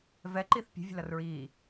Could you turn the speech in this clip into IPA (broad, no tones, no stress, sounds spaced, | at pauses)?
v ɛ ǃ i θ pʲ ɛ̤ vʲ ə̤ l ʌ r ɹ iː